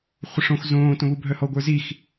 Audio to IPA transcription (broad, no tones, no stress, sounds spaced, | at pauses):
χʷ ə ʂ õ x z õː t õ β u bʱ œ h ɔ ɡʷ ə˞ z i x